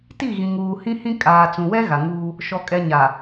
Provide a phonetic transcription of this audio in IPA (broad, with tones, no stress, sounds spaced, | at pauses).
t i˦˨ ɣ ĩ˨ ŋ uː˨ h ĩ˦ h ĩ˦ kʼ aː˨ t͡s ũ˨ w ɛ˦ ɣ a˨ ŋ uː˦ | ʃ ɔ˨ kʼ ɛ˨ ɲ a˨